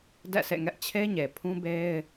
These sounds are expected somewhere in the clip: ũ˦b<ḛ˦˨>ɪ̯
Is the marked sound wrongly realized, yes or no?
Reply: yes